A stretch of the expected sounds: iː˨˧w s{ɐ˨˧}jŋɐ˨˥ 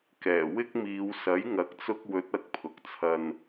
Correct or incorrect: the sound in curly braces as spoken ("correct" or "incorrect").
incorrect